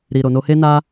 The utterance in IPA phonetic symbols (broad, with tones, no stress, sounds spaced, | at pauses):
ɾ i˨ ɾ o˨ n o˧ h e˦ n a˦